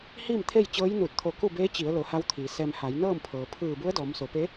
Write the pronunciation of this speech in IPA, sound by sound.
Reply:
h iː˥˨ m t̪ʰ e˥˨ j t͡ɕ ɤː˧˥ j n u˧˩ t̚ t̪ʰ o˧˩ k u˥˨ b eː˧˥ t͡ɕ i˩˧ ə̯ l o˩˧ h a˧˥ w t̪ʰ iː˩˧ s ɛː˧ m h a˩˧ j n ɤː˥˨ m pʰ ɤː˩ pʰ ɯː˧˩ b u˧˥ ə̯ d ɔː˩˧ m s o˩˧ p e˧˥

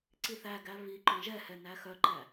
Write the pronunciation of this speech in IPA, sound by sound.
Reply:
ǀ i θ æ ɡ æ β i ǃ œ̃ ʒ ɛ h ɛ n æ x œ ǃ æ

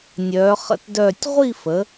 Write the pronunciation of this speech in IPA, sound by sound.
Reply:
nʲ œː˧˥ χ ə̰˥˧ t d œː˥˧ tʲ ʁʷ i˥˧ f ə˩˧

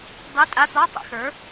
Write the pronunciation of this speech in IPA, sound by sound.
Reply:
dˤ i˧˥˧ tʼ a˧˥˧ t̪ ɒː˧˥˧ tˤ ḛ˩˥ x ə˞˩˥

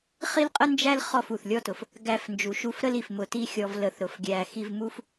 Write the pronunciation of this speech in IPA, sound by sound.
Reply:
χ i˦ l qʼ ə˦ n d͡ʒ æ˦ l χ ɔ˦˨ f u˨ θ lʲ ɔ˦ t ʊ˨ f | ɡ æ˧ f n d͡ʒ u˨ ʃ u˧ f ɾ ə˦ l i˨ f m ʊ˧ t i˦ xʲ ɔ˧ v l ə˧ θ ɾ ʊ˨ f ɡʲ æ˧ x i˧ v m u˦ f

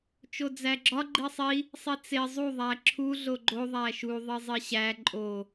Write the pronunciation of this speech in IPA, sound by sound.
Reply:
t͡ʃ o d͡z æ ɡ͡ǁ ɒ ɡ͡ǃ i sˤ i | sˤ i t͡s e zˤ u ðˤ æ ǁʰ u ɮ o ɡ͡ǃ o ðˤ æ ʃ u ðˤ i zˤ i ɕ æ ǃʼ o

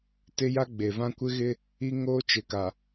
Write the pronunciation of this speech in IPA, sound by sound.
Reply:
t ɪ˦ j a˦ ɡ͡b e˨ v ã˦ kʷ ɪ˦ ɣ ɪ˦ | i˦ ŋ oː˦ t͡ʃ ɪ˨ k a˨

